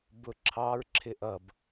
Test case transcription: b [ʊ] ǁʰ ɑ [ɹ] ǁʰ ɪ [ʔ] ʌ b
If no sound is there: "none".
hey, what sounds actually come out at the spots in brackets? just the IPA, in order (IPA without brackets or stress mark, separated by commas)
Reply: ʊ, ɹ, ʔ